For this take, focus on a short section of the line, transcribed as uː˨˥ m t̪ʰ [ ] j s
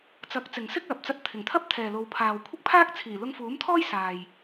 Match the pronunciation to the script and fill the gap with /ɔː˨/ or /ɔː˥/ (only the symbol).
ɔː˥